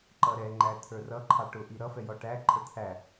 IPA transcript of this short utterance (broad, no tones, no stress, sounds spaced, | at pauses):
ǃ ʌ ɾ ɛ ŋ͡ǃ æ t̪ʰ ə˞ r ʌ ǃʰ ɑ ʈ ʊ ʔ i ɾ ʌ f ɛ j ɔ ʈ æ ǃʰ ə t̪ʰ æ